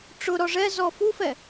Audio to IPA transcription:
ʈ͡ʂ ʊ ɾ ɔ ʐ ɛ z ɔ f u f ɛ

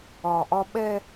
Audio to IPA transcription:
ɒ˨ ʔ ɒ˦ ɓ ɛ˦

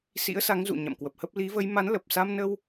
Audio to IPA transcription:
s ḭ˧˥ ə̯ s a˨˦ ŋ z ṵ˧˨ ɲ a̰˧˨ m k w ə˨˩ p̚ h ə˦˥ p̚ l i˨˦ v ə˨˦ j m a˨˦ n l ə˨˩ p̚ s a˧ m n ə˧ w

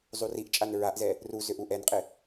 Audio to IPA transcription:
zˤ u r i ʔ t͡ʃʼ a n ɹ a ʔ z ɛ | r u z ʏ ʔ u ʔ ɛ n qʼ ɪ

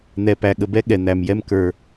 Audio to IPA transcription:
n̪ ɛ˨ p æ˨ ɠ ə˨ b ɛ˦ ɠ ɛ˨ n̪ æ˨ m j ɛ˦ m k ə˞˦

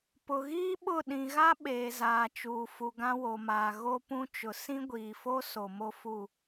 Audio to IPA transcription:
p ʊ˨ ɣ iː˦ ɓ ʊ˦˨ ɗ ĩ˨ ɣ a˦ ɓ eː˨ z aː˨ t͡ʃ uː˨ f u˨ ɡ ã˦ w o˨ m aː˨ ɣ o˦ p ũ˦ t͡ʃ ʊ˨ s ĩ˦ ɡʷ iː˨ f o˦ s o˨ m o˦ f u˦˨

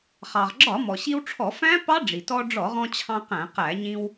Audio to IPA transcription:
χ ɑ˩ ʁ ɡ͡ǁ ɒ˧˩˧ m ɔ˩ ɕ i˧ w ʈ͡ʂʰ ɔ˧˩˧ f æ̃˦˥ p ɑ˦˥ ɖ͡ʐ i˩ t ɔ˧ ɖ͡ʐ ɔ˧˩˧ ʁ ɔ̃˧ t͡ɕʰ ɑ̃˧ q æ̃˧˩˧ q æ˧˩˧ ɲ ĩ˧ w

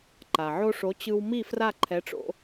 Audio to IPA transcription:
ǃ a˩ ʕ o˥ ʂ o˩˥ t͡ɕ ɯ˧ w m i˥˩ f r a˥˩ ǃʰ ɛ˩˥ ʈ͡ʂ o̰˧

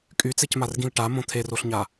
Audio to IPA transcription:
kʼ y t͡s e c m a r ɡ ĩ l ʈ a m õ t̪ʰ e r o ɬ ɲ a

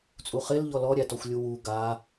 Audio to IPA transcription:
t͡sʼ u χ ɪ l ʎ ɔ l ɔ ɾʲ æ t ɔ xʷ lʲ u w u ɡ a

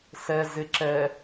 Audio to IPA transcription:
s ɛ z ɪ ǁ ɛ

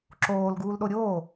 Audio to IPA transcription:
ǁ oː l ɡ uː l ɗ o ɾʲ oː

